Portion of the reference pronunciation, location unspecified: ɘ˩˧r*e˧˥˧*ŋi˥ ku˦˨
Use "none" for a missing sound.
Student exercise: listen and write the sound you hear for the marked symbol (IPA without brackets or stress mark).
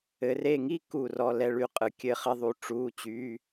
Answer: e˦˨